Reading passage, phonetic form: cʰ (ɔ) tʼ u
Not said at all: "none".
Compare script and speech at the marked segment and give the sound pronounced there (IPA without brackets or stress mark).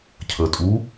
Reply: ə